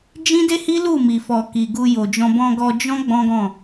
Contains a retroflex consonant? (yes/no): no